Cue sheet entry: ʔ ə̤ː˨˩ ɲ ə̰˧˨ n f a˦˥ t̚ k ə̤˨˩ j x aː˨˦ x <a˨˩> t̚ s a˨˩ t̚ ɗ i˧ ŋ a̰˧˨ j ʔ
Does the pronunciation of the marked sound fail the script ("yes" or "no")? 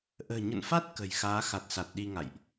no